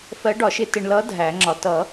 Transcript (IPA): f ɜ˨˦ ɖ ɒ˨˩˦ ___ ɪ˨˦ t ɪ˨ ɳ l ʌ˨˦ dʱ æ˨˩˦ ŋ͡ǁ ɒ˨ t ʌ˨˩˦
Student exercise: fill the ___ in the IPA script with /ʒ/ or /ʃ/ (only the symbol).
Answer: ʃ